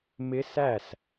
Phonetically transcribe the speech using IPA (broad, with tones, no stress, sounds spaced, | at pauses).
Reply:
m ɪ˦˥ s æ˥˨ s